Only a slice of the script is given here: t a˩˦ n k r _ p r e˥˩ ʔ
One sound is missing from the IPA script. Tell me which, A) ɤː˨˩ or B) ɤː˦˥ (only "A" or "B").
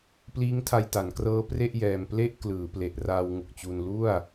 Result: B